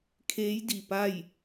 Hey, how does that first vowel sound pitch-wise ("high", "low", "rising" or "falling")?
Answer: rising